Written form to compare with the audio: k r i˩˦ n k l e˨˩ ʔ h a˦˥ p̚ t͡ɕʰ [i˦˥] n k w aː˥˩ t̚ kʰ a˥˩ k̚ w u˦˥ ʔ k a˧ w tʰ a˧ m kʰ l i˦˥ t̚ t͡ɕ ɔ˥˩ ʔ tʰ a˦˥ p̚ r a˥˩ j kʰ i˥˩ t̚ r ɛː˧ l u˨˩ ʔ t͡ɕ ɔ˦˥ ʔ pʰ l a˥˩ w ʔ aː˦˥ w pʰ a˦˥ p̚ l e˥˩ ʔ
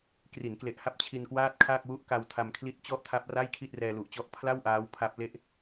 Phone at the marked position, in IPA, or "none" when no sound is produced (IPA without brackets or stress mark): i˧